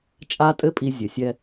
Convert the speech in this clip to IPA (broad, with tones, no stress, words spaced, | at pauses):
t͡ʃʼa˧tʼɘ˧pʼi˨ zʲɘ˨sʲɛ˧